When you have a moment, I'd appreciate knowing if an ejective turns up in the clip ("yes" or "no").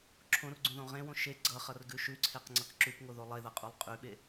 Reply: yes